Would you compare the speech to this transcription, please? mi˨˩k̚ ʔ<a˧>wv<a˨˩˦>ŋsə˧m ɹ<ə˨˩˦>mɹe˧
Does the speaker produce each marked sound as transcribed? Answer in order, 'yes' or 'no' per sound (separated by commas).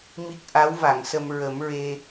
no, no, yes